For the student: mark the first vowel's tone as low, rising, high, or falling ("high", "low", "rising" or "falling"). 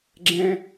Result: high